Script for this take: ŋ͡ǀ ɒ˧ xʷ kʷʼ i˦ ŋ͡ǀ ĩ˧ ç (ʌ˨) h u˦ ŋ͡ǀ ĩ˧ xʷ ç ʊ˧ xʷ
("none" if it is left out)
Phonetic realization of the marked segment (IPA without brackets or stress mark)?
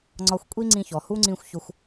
ɔ˨